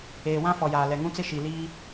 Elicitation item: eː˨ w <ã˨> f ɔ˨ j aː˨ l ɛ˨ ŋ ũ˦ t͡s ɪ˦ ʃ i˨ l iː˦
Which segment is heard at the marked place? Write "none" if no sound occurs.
ã˦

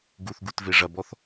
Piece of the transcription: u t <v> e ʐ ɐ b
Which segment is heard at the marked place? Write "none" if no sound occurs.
v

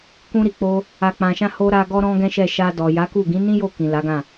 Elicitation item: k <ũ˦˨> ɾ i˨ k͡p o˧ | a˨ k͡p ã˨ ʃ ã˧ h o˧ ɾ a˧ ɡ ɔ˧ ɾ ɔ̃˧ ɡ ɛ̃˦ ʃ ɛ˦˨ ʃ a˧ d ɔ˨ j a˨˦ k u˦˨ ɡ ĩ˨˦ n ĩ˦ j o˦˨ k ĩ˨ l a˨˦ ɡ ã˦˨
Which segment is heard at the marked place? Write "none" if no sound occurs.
ũ˧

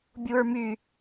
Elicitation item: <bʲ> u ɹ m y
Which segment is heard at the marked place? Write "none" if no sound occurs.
bʲ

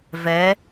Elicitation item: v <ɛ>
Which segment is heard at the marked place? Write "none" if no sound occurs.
ɛ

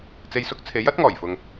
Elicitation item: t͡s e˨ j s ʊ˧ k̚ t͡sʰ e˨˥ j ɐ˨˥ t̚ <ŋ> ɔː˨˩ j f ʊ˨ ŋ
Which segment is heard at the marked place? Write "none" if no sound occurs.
ŋ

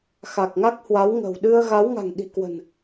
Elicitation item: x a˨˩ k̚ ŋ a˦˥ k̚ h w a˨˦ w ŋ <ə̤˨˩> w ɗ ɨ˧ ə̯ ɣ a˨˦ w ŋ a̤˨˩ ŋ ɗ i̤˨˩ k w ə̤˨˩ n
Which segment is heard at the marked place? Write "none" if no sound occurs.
ə̤˨˩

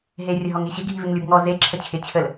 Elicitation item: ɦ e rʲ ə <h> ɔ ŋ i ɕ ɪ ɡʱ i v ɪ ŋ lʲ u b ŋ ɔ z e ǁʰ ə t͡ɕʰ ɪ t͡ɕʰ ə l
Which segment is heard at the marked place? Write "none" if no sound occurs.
ɦ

